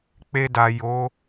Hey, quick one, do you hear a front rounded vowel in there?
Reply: no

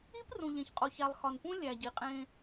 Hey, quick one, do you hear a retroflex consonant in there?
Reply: no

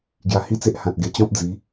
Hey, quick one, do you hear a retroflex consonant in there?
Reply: no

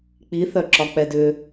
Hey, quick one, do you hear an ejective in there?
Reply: no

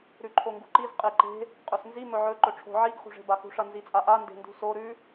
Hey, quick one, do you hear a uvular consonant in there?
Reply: yes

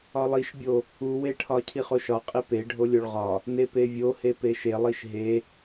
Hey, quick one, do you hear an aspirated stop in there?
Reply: yes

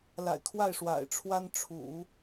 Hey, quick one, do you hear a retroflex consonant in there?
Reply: yes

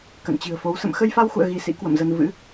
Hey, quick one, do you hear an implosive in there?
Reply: no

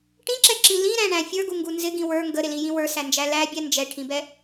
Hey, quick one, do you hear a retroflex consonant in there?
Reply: yes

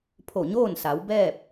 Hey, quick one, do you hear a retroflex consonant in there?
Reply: no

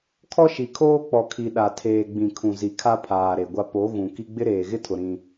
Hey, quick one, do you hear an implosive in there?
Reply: yes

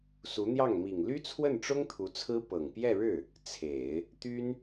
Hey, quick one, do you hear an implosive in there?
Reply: no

